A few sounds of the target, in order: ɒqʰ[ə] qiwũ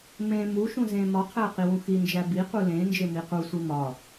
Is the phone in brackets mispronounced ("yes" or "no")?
yes